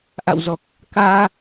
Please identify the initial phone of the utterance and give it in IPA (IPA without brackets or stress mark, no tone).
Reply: ʔ